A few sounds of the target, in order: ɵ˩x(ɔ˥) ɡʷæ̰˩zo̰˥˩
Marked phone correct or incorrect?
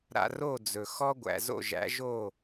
correct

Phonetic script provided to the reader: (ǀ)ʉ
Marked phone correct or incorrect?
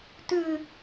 incorrect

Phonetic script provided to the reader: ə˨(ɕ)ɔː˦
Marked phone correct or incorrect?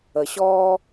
correct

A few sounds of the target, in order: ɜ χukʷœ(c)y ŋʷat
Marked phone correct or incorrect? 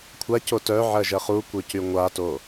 correct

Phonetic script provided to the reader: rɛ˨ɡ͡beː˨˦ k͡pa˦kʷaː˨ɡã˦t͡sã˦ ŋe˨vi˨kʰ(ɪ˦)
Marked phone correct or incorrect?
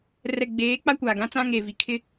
correct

